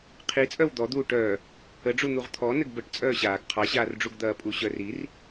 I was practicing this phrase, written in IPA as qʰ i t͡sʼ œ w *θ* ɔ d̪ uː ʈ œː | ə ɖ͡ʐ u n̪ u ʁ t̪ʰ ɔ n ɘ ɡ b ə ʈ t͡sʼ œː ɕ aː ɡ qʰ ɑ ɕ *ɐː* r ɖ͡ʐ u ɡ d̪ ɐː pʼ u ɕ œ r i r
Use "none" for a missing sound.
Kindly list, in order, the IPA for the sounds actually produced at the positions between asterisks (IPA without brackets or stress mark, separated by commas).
d̪, aː